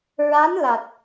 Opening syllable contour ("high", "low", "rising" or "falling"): rising